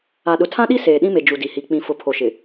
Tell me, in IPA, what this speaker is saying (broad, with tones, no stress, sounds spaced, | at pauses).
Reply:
a˨ ɗ ʊ˨ tʰ ã˦ ɗ i˦ s eː˨ ɗ ĩ˦ m e˨ d͡ʒ u˨ d i˨ h i˨ k͡p ĩ˨ f ʊ˨˦ pʰ o˨ ʃ ɪ˨